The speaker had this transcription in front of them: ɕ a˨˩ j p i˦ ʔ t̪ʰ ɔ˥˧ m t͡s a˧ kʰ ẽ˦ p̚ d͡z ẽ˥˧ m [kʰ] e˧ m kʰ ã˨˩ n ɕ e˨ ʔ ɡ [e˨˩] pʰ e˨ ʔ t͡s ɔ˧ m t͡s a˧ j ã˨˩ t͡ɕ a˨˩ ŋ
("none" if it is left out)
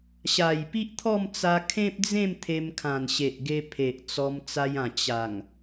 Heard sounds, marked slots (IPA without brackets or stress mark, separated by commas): t̪ʰ, e˧